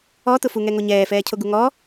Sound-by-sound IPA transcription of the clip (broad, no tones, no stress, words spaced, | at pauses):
ɔtʊfuŋɛ ŋoɲɛːfɛːcʰo ɡuŋɔ